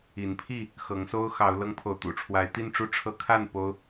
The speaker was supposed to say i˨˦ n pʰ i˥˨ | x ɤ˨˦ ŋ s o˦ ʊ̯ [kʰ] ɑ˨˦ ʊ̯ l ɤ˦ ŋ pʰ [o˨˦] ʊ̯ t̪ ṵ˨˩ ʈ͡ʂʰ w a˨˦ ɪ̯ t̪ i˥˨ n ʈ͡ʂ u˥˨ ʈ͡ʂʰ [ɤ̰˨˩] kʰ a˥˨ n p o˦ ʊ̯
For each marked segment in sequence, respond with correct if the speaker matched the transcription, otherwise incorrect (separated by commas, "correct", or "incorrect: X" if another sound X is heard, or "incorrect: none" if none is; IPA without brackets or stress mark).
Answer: incorrect: x, incorrect: o˨, incorrect: ɤ˦